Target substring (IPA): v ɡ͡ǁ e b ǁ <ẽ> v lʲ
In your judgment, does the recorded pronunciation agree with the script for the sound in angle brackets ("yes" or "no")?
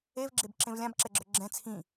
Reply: yes